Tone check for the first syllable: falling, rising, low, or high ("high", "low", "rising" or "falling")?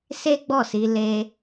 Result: high